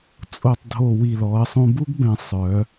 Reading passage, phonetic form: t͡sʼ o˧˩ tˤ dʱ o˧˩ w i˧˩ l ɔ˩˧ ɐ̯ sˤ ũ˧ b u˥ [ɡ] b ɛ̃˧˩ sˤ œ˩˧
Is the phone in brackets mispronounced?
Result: no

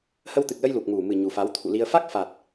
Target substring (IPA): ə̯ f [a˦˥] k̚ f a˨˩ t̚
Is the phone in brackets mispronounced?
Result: no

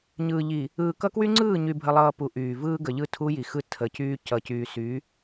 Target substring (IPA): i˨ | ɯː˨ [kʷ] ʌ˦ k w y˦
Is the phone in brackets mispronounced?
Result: yes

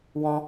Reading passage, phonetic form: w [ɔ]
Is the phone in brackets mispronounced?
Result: yes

